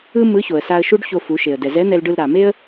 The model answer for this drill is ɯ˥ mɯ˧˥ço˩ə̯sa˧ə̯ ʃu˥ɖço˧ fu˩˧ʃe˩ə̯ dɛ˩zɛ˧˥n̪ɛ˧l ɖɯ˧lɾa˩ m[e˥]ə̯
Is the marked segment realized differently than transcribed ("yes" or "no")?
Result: no